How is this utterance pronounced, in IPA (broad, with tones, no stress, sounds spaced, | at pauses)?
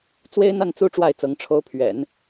t͡s w e˥ ɪ̯ n̪ a˥˩ n t͡s u˥ ʈ͡ʂ w a˥˩ ɪ̯ t͡s ɤ˧˥ ŋ ʈ͡ʂʰ o˧˥ ʊ̯ pʰ ɥ ɛ̰˨˩˦ n